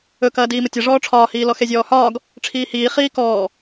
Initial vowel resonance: oral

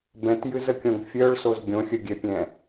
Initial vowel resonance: nasal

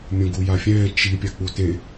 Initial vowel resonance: nasal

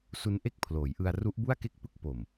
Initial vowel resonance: oral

